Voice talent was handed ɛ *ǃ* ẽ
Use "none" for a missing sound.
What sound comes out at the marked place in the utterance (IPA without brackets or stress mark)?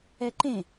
ǃ